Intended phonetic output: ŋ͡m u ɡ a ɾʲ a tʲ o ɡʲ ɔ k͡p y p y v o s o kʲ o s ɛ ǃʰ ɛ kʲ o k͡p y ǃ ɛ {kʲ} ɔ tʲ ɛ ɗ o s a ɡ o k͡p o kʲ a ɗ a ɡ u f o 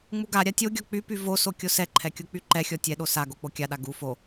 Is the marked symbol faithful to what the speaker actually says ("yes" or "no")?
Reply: no